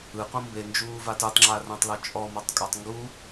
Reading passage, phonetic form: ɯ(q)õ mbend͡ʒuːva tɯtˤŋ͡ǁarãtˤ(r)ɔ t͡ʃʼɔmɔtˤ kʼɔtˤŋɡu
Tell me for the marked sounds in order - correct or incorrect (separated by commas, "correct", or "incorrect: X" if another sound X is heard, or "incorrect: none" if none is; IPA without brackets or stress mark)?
correct, incorrect: l